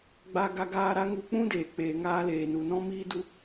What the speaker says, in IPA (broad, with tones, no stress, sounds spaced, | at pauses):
ɡ͡b a˧ ɡ a˧ ɡ aː˧ ɾ a˦ ŋ u˧ k͡p ũ˦ d eː˨ k͡p eː˨ ŋ aː˧ l eː˨ n u˨ n ɔ̃˦ m iː˦ d u˦